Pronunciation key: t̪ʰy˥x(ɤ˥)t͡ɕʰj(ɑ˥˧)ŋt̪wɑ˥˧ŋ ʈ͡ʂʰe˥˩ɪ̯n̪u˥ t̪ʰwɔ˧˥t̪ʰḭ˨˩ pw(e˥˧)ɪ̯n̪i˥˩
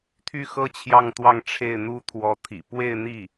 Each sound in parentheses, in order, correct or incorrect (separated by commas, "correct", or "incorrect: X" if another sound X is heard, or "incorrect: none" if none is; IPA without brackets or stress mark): correct, correct, correct